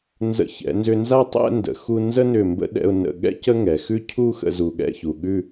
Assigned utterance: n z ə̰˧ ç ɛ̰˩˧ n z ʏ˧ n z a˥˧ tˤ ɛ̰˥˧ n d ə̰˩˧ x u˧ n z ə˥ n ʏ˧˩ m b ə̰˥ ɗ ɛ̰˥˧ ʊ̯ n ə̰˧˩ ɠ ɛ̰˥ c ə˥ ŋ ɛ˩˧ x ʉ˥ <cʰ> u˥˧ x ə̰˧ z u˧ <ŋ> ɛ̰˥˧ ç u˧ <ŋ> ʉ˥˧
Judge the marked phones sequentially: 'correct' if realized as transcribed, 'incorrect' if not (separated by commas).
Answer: correct, incorrect, incorrect